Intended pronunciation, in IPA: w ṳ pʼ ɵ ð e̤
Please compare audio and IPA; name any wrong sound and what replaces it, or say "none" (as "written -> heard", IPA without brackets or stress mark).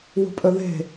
none